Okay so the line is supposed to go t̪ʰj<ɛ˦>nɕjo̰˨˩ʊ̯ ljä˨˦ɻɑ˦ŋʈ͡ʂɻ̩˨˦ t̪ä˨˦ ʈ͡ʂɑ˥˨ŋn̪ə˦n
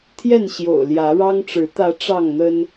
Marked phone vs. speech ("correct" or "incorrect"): incorrect